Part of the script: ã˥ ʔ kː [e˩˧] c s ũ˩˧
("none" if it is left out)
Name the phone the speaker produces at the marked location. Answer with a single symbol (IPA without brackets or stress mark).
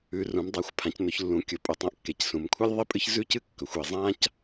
e˩˧